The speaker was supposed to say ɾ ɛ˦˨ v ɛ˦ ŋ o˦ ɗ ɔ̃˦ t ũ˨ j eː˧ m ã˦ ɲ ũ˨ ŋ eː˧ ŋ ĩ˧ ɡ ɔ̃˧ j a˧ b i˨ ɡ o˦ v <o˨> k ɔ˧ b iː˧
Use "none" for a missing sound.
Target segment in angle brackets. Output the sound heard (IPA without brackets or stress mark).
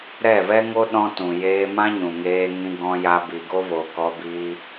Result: o˨